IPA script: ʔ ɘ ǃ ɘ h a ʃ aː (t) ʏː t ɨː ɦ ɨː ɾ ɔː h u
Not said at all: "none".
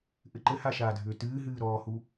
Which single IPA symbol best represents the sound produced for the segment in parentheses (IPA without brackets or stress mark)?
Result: dʱ